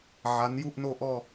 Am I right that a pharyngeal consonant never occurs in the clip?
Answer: no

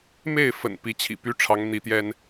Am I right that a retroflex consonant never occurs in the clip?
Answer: no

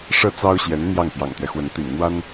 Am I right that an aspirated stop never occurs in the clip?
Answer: yes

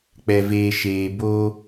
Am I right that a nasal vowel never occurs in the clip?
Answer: yes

